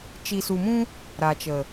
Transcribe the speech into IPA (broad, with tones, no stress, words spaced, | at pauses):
t͡ʃi˨su˨mũ˦ | ɾa˨t͡ʃə˨